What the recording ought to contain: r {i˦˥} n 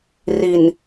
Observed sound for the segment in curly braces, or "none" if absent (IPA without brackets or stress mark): i˨˩